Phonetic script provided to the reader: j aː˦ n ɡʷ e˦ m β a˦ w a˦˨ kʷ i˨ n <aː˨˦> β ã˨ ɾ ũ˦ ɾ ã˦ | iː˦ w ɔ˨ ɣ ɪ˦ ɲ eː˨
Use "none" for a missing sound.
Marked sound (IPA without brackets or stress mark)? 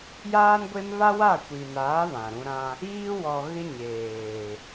aː˨˦